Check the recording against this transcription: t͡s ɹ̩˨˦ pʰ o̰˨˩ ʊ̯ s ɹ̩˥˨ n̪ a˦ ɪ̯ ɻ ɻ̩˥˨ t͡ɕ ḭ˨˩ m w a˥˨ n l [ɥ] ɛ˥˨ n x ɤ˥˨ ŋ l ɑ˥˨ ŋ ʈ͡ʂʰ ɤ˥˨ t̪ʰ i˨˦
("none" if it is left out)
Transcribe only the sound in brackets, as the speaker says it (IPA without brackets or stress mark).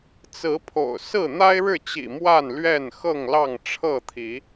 ɥ